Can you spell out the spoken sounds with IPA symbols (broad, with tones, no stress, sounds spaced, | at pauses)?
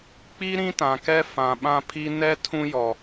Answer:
k͡p i˦ ɾ ĩ˦ t ã˨ k ɛ˦ f ã˨ ɓ ã˦ pʰ i˦ n ɛ˦ tʰ ũ˦ j ɔ˨